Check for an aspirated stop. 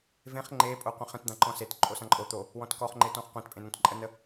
absent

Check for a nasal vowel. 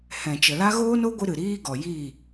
present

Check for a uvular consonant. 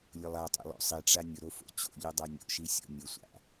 absent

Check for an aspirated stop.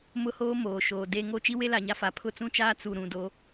present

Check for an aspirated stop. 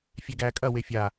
absent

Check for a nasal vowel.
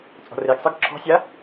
absent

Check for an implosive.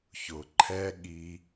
present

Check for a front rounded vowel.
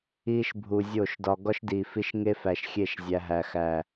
absent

